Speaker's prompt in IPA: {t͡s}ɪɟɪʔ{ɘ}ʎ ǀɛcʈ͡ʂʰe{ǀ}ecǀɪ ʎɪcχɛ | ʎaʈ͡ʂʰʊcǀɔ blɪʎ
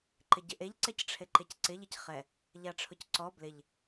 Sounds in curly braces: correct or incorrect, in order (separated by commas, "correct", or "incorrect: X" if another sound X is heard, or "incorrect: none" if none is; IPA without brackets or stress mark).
incorrect: ǃ, incorrect: e, incorrect: ǃ